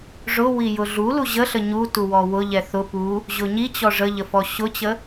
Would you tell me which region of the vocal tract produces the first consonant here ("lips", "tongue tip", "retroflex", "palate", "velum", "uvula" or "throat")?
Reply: retroflex